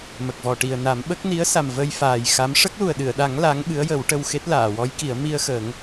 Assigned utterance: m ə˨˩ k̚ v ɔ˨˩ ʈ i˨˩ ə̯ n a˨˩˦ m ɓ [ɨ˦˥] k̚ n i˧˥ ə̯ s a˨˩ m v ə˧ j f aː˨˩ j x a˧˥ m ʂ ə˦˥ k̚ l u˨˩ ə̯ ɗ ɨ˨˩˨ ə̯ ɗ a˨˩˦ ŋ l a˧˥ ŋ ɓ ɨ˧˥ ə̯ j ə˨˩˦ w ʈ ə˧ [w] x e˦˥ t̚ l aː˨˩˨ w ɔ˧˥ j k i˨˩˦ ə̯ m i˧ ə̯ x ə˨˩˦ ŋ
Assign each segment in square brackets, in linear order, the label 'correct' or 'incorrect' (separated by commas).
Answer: incorrect, correct